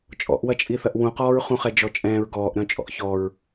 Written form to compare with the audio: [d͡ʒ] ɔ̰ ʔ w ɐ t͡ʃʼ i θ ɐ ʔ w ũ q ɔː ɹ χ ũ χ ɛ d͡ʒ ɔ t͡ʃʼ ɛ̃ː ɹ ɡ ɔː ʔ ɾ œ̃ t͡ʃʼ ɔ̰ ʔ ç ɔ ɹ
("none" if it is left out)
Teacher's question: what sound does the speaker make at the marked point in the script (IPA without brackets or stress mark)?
t͡ʃʼ